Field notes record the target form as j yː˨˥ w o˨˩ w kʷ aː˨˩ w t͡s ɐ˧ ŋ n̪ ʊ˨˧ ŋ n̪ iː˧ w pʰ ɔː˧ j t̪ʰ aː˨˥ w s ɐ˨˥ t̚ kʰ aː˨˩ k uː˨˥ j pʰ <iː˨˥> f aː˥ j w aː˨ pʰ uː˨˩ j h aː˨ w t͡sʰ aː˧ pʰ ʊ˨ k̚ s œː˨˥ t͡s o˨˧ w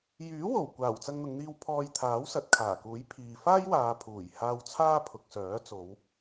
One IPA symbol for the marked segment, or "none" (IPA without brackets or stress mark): iː˨